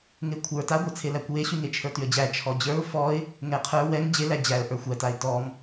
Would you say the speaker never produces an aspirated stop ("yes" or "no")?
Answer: no